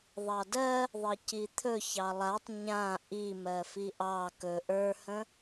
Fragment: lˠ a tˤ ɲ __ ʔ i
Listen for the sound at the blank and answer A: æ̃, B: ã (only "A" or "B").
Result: B